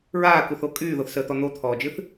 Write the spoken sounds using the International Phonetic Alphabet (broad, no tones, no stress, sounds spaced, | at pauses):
ɹ aː k u θ o kʼ yː ð o θ s əː t̪ ɔ n̪ o t̪ʰ ɔː d͡ʒ ɨ θ